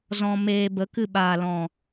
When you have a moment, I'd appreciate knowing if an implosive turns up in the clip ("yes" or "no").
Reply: yes